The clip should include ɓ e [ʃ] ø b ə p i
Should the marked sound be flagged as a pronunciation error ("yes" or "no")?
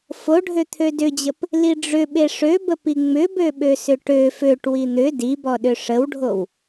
yes